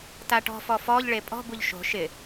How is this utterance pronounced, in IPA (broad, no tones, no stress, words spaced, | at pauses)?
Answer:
taʈɔ̤fɔ fɔʎɭe pʼɔ̤buʎ ʃo̤ ʃɪ